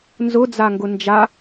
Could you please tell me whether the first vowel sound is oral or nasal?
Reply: oral